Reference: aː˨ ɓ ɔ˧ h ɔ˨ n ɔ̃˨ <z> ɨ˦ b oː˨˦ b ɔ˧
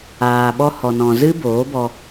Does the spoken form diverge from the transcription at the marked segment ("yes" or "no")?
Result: no